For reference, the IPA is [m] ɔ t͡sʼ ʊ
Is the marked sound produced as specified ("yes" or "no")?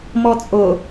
yes